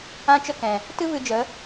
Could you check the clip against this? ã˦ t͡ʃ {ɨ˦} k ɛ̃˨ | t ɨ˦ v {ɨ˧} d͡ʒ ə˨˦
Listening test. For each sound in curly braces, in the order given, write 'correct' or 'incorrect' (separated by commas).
incorrect, correct